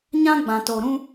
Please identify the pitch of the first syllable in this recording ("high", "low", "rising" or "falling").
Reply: high